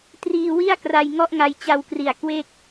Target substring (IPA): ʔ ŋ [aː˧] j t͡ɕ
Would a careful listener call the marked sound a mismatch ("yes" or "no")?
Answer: yes